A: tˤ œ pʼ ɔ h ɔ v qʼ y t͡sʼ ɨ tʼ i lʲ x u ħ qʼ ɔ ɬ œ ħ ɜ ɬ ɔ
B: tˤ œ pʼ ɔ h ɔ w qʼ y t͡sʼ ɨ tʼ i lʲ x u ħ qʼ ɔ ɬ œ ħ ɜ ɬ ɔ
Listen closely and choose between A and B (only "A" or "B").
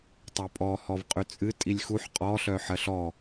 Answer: A